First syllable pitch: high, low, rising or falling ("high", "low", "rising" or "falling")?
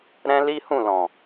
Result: high